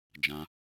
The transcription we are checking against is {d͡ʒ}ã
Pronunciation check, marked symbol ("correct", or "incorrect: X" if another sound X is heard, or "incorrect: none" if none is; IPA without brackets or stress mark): correct